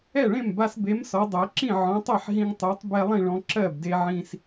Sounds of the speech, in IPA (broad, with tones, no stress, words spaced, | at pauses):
ɛ˥˩ɭẽ˥˩mba˧sbe˨˥m sɔ˨˥dˤɜ˨˥ ǁĩ˥˩ʕɔ̃˨˥tˤɜ˥˩ħɦĩ˧ŋ tˤɜ˨˥tˤ bɛ˧ lˠĩ˥˩ɭɔ̃˧ ǁɜ˥˩bde˧ ʕĩ˧s